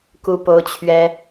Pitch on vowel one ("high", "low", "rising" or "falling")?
high